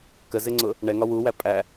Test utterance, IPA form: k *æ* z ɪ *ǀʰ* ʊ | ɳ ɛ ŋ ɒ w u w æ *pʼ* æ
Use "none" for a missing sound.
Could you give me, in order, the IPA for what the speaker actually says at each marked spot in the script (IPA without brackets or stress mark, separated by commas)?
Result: ə, ŋ͡ǀ, pʼ